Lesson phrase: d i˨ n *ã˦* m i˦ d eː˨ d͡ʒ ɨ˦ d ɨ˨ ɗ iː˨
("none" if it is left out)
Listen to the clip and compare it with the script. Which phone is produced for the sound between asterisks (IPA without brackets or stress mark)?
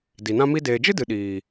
ã˦